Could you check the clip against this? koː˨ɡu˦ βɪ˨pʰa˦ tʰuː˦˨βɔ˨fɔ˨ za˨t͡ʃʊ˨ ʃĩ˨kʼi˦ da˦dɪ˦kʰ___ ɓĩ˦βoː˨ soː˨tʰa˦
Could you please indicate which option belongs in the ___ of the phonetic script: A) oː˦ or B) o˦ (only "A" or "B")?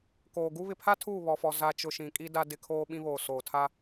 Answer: A